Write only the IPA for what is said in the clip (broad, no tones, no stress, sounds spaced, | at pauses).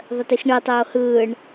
ðˤ ə t i x ɳ ɯ tˤ oː h ɯː ɳ